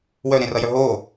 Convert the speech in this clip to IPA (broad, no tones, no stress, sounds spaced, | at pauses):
w œ ɾ ẽ r ʌ j œ ɦ o